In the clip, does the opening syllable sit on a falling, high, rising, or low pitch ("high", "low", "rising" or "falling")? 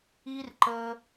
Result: high